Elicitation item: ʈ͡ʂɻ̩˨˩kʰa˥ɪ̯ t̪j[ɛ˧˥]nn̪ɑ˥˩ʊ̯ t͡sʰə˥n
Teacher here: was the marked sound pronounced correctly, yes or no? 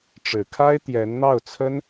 yes